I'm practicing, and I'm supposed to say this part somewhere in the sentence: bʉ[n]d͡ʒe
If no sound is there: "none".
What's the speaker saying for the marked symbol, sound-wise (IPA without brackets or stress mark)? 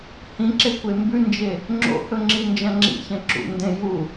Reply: n